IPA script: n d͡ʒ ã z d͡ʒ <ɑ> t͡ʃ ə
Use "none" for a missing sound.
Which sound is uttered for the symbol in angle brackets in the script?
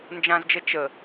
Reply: ə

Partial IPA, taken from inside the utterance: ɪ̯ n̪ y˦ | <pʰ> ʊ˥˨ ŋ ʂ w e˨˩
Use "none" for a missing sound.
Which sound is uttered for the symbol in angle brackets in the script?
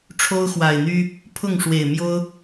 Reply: pʰ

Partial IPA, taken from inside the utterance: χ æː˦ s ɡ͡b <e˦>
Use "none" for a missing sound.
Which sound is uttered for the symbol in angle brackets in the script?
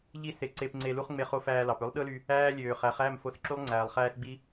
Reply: i˦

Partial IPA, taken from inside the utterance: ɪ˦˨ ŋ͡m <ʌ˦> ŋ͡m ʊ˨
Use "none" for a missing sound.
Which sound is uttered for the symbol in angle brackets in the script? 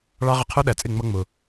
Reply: ʌ˦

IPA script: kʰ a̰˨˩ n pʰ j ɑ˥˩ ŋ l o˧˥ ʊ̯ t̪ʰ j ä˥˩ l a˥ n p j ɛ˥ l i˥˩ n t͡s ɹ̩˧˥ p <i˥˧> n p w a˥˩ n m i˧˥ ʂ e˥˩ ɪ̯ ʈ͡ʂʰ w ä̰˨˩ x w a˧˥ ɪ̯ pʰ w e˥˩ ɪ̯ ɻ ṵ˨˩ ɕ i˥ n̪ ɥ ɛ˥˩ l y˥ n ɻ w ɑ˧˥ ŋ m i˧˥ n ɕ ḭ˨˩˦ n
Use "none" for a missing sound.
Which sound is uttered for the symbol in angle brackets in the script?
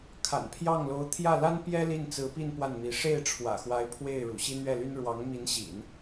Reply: i˥˧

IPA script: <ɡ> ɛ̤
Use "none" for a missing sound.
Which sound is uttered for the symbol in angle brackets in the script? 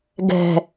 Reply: ɡ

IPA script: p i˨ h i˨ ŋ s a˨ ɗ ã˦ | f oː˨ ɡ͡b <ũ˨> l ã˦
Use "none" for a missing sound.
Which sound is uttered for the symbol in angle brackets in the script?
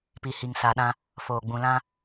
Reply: ũ˨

